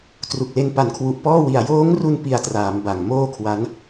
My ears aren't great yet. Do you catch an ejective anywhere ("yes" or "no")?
no